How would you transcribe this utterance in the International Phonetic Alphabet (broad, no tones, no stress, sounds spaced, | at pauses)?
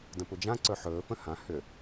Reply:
d ə̃ p u d͡ʒ ã ǀ ɵ ħ ɵː f ə̃ h ã h ʏ